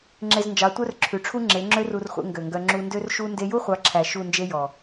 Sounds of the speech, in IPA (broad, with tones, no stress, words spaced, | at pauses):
ŋ͡ǁe˧znd͡ʒɑ˨˦ tʷœ˦rǁʰʉ˨ʈ͡ʂʰu˦ ŋ͡ǁe˨˦ŋ͡ǁø˦ru˧rχʷḛ˧ ŋɡø˨ŋɡœ˧ ŋ͡ǁu˧ndø˦rʃu˦ nde˧ju˦χʷɑ˨˦ǁʰæ˨ ʃu˦˨nd͡ʒe˦jɔ˨